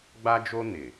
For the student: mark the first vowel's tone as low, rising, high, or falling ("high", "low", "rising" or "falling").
high